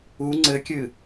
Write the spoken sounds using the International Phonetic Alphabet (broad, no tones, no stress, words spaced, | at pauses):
u ŋ͡ǀɘkʲɨ